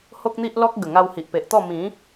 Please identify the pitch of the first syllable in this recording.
high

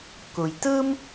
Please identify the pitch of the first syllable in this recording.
low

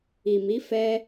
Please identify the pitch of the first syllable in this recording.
low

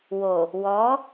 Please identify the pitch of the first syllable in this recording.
low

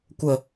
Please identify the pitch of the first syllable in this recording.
low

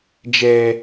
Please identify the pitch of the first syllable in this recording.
high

